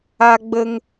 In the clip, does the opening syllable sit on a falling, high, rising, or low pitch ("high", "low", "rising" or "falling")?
high